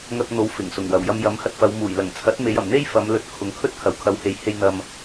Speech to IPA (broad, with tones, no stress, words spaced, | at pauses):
ŋɐ˧k̚n̪o˨˥w fɪ˨˩ŋsʊ˨˩ŋ wɐ˨˩wjɐ˧mjɐ˨˥m hɐ˨t̚fɐ˨˧wmuː˨˩j lɐ˨˩ŋt͡sʰɐ˨˥t̚me˨˧j ɐ˨˩mn̪e˥jfɐ˨˧mlɵ˨˥t̚ kʰʊ˨˧ŋkʰɵ˥t̚kʰɐ˨w kʰɐ˨whe˨˥jhe˧j n̪ɐ˧m